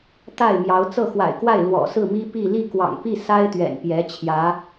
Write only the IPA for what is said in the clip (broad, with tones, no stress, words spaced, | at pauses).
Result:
t̪a˥˩ɪ̯mjɑ˧˥ʊ̯ t͡sɤ˥˩xwa̰˨˩ɪ̯kwa˥˩ɪ̯ lwɔ̰˨˩sɹ̩˥˩mi˥ pi˥˧ li˥˩kwɑ̰˨˩ŋpi˥˩ sa˥ɪ̯t̪ɥɛ̰˨˩npjɛ˧˥ t͡ɕʰjä˧˥